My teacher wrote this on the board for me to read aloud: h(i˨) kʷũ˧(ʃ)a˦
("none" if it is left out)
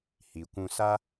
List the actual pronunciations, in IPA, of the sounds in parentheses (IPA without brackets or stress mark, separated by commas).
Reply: i˨, s